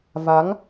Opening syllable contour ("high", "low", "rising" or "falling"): rising